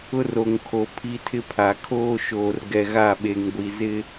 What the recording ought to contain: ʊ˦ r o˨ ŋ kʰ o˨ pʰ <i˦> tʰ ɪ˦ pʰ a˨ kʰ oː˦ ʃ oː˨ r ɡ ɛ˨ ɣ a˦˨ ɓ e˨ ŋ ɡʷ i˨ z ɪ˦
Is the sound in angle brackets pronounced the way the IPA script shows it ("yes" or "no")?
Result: yes